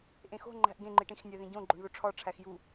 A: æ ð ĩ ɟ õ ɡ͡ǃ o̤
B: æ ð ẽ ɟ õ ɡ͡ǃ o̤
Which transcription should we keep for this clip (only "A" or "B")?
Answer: A